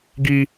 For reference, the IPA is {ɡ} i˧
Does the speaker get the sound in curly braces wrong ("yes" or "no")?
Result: no